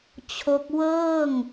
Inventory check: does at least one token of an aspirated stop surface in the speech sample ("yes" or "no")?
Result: yes